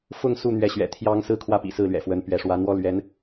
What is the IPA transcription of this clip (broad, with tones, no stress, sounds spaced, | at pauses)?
f ʊ˥˧ ŋ s u˥˩ n̪ ɥ ɛ˧˥ ɕ ɥ ɛ̰˨˩ t̪ʰ j ɑ˥ ŋ s ɹ̩˥ kʰ w ä˥˩ p ḭ˨˩ s ɹ̩˥˩ l ɥ ɛ̰˨˩ f w ə˧˥ n p ɥ ɛ˧˥ ʂ w ä˧˥ n̪ w ɔ˥ l ɥ ɛ˧˥ n